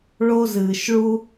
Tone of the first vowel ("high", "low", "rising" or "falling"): high